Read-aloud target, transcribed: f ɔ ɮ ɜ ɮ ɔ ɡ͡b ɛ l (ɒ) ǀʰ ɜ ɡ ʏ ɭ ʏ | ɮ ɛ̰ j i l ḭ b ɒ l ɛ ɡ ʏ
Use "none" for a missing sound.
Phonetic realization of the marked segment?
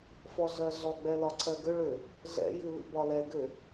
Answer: ɒ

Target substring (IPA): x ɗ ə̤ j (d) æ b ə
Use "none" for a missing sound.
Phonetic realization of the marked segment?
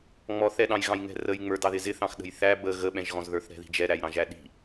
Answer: θ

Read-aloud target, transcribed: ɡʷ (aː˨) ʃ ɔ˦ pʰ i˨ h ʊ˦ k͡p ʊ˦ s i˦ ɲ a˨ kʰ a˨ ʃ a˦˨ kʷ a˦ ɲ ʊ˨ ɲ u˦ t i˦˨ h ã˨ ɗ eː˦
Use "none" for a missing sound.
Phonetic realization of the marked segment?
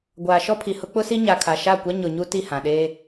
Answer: aː˨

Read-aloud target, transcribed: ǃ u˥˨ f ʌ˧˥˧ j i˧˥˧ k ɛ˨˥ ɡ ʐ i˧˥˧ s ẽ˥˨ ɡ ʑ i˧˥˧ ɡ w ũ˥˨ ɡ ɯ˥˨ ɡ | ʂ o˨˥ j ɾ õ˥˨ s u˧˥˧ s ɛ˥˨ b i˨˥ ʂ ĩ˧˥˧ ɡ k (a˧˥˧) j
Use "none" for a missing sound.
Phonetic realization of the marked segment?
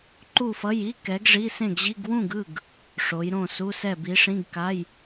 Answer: a˧˥˧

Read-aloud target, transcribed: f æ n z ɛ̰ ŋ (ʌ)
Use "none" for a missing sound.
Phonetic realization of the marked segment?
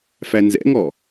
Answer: ɔ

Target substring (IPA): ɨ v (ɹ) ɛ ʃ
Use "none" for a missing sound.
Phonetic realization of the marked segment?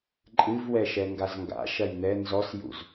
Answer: w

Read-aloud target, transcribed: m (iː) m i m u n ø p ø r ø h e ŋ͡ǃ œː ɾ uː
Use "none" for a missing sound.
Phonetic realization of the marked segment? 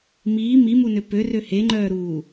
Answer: iː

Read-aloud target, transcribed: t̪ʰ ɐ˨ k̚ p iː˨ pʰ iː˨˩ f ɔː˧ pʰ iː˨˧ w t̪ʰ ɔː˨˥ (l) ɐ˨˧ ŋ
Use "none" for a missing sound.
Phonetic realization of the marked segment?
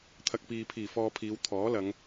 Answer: l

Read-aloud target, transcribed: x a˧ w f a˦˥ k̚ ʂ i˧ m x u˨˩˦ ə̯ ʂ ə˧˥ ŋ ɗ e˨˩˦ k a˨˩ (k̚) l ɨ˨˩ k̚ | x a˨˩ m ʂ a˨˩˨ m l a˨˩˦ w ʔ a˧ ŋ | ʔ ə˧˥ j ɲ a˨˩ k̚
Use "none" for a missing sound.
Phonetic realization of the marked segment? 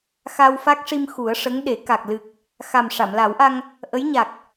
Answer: k̚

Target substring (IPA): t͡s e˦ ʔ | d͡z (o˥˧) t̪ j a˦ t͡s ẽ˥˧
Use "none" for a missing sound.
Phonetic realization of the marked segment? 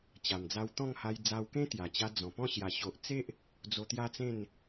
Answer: o˧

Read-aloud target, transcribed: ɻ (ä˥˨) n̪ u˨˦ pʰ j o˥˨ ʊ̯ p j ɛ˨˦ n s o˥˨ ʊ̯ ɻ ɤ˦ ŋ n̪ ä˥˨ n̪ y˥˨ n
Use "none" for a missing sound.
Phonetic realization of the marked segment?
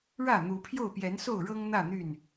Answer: ä˥˨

